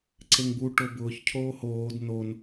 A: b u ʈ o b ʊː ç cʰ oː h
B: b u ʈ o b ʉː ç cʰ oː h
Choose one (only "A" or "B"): A